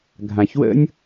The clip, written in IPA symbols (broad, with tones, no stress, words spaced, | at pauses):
ɡʱã˩çwə̰˥nʲ